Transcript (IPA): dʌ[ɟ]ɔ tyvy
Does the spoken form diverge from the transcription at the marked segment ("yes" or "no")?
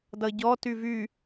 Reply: no